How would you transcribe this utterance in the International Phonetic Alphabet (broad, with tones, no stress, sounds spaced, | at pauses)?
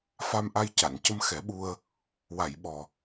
f a˧ m ʔ a˧ j c a˨˩˨ n c ə˧ m x ɛ˨˩˦ ɓ u˧ ə̯ | w a˨˩˨ j ɓ ɔ˨˩